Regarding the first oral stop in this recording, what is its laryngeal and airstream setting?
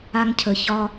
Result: aspirated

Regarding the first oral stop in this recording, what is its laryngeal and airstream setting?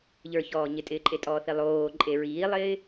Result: ejective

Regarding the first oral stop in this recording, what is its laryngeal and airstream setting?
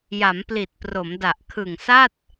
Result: plain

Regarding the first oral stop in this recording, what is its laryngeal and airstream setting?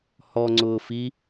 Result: click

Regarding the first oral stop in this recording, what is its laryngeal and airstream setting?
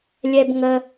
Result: plain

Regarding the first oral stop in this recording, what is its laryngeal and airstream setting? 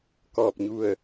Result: plain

